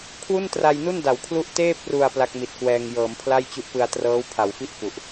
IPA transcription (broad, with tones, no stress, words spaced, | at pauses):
kʰwu˥˩ntra˧jnu˥˩n da˩˦wkʰlu˥˩ʔ teː˥˩p̚ru˨˩a̯ pla˦˥k̚mi˨˩t̚kwɛː˧ŋ jɤː˩˦mpʰla˥˩jt͡ɕu˦˥ʔpɯ˧a̯ trɤː˦˥wpʰa˩˦wfi˥˩ʔ fu˨˩ʔ